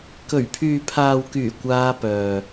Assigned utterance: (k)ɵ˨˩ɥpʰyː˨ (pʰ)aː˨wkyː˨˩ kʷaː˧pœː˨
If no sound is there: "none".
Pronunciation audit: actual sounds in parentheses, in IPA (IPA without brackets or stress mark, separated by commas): k, pʰ